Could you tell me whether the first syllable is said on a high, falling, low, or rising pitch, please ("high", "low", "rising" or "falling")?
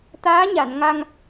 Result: rising